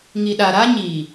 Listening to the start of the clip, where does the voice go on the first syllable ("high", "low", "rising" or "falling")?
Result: low